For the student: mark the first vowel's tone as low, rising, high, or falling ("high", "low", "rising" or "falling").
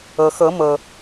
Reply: low